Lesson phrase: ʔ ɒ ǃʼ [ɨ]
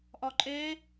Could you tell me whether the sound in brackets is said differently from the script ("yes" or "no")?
yes